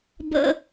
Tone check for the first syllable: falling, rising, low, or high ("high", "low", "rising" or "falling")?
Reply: high